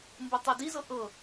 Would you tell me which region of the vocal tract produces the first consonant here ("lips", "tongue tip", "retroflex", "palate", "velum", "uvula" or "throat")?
lips